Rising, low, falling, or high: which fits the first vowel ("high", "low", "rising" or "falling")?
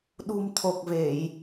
low